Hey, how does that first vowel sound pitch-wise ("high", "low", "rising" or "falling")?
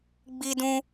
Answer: high